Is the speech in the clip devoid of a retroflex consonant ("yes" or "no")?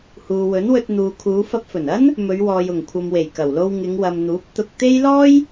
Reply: yes